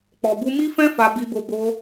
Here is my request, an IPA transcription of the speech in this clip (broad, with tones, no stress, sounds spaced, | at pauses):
k͡p ɔ˨ b u˧ m i˦ f ɛ̃˦ f a˧ b i˧ b o˧ b o˧